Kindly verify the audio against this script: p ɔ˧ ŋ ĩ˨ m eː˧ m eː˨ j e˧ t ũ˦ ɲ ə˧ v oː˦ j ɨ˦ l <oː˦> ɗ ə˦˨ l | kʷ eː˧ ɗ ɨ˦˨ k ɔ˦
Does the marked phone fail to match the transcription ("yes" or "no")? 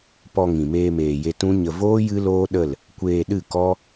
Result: no